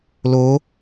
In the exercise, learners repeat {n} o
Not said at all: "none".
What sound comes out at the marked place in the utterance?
l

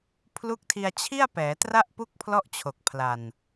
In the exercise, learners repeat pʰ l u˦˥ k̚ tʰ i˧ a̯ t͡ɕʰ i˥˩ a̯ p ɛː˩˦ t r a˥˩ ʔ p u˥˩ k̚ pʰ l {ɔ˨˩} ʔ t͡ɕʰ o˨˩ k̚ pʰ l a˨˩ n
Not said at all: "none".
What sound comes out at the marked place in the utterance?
ɔ˥˩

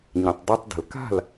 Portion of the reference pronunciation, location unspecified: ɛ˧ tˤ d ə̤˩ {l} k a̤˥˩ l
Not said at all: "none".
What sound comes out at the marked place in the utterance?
l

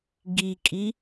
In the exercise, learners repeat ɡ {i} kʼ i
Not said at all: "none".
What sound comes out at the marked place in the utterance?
i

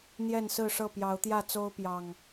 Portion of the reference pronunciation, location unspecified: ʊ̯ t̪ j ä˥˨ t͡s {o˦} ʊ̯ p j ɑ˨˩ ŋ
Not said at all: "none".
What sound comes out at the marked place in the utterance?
o˦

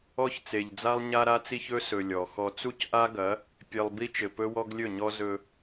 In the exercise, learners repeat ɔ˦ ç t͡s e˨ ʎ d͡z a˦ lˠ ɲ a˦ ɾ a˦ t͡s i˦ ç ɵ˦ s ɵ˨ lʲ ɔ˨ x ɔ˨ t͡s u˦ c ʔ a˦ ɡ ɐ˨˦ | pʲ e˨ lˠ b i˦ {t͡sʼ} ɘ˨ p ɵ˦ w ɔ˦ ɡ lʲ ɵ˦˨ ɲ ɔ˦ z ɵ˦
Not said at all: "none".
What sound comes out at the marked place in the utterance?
t͡ʃ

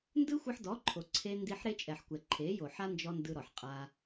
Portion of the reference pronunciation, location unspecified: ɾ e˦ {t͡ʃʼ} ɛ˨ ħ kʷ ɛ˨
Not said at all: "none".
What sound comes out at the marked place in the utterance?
t͡ʃʼ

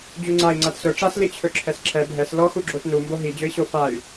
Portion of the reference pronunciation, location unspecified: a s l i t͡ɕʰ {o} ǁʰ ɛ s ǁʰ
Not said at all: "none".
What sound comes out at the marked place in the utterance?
ɵ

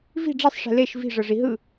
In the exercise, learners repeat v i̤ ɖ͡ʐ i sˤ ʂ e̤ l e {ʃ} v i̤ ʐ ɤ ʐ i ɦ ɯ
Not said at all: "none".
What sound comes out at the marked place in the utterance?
ʃ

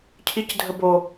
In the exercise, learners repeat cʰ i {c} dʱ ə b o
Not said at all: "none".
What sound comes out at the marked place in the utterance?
c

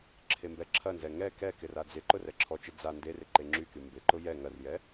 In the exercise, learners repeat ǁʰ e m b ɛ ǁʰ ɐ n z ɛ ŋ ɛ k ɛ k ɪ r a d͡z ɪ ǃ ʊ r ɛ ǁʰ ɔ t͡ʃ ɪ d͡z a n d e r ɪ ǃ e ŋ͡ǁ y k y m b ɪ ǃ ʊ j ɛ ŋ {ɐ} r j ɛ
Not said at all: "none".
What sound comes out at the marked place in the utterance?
ɐ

